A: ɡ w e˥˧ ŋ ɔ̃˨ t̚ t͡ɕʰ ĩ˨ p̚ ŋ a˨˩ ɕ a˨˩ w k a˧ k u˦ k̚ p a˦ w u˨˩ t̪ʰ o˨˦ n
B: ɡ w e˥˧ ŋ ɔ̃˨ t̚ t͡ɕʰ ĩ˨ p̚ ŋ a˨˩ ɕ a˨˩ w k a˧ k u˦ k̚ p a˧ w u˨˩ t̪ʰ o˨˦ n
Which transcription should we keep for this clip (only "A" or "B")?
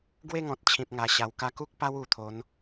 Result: A